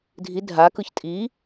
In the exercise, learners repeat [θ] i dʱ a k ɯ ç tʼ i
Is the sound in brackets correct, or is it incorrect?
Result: incorrect